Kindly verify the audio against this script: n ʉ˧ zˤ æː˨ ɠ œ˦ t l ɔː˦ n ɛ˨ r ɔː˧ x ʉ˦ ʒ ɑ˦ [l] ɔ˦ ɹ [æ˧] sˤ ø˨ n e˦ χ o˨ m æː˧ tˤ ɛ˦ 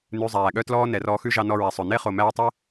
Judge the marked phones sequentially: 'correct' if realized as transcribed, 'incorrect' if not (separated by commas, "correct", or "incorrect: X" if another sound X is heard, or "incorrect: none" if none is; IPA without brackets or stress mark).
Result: incorrect: n, correct